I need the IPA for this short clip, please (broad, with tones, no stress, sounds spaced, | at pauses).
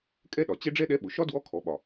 kʼ ɛ˥ ɗ ɒ˩ t͡ɕ ɛ˥ ɖ͡ʐ ɛ˥ ɗ ɛ˧˥ ɓ ʊ˩ ʃ ɒ˥ d w ɔ˧˥ kʰ ɔ˩˧ ɓ ɒ˩